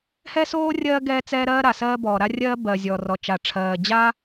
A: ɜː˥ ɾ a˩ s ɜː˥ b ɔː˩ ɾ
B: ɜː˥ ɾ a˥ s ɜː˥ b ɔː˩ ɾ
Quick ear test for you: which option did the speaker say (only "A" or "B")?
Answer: A